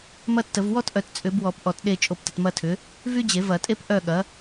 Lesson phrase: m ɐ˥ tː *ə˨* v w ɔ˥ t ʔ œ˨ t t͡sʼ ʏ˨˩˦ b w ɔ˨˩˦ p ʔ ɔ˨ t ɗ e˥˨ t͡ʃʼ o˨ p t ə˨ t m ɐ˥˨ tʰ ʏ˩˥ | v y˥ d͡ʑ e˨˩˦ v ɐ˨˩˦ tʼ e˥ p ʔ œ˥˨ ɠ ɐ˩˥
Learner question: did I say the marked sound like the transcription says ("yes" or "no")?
no